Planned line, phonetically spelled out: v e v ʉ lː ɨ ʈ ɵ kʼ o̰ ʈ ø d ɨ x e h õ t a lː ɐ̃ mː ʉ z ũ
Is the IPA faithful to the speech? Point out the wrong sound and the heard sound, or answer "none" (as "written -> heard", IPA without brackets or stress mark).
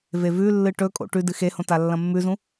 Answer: ø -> ʉ